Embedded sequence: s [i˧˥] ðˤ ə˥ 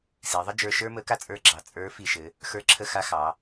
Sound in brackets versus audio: incorrect: i˩˧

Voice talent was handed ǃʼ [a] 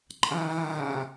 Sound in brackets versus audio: incorrect: aː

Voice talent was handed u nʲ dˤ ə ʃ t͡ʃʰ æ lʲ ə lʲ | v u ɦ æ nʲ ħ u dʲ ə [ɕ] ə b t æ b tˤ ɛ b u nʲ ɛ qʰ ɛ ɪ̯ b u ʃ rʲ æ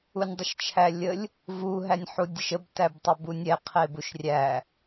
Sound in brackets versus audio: incorrect: ʃ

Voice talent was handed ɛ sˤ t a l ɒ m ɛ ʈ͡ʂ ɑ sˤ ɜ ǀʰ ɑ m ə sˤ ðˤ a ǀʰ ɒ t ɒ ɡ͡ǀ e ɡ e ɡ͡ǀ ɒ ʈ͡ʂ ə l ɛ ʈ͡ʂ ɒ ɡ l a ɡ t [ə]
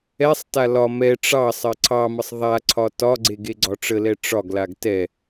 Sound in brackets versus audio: incorrect: ɛ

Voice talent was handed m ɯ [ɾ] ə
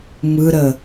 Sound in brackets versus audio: correct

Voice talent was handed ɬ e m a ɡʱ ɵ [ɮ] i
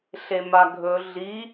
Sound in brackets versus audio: correct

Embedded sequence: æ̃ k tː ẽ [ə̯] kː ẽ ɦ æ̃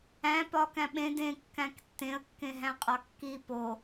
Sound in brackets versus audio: correct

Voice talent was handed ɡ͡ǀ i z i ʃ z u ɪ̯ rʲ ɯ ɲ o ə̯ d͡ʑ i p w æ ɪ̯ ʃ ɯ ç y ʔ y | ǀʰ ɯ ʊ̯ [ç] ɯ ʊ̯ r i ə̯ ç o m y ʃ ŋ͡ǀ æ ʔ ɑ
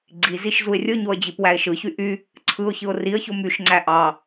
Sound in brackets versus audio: correct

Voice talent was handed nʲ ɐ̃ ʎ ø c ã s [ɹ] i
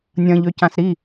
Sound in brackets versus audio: incorrect: ɾ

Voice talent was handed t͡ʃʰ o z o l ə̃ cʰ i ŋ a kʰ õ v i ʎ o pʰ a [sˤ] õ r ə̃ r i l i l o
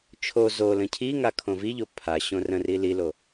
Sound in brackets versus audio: incorrect: ɕ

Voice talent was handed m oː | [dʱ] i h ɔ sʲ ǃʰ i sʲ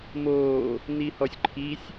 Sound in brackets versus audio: incorrect: n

